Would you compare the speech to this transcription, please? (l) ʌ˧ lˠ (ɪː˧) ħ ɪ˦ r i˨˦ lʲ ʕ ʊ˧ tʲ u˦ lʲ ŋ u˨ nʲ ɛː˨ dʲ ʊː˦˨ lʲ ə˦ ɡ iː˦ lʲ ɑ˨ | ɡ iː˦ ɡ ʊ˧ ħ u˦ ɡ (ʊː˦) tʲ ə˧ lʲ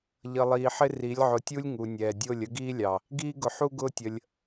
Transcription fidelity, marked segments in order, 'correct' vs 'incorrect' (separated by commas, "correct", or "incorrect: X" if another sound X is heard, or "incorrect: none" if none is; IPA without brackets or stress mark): incorrect: ʎ, incorrect: iː˧, correct